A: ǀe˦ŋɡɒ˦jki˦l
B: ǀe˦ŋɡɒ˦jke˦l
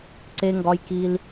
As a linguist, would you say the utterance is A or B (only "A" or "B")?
A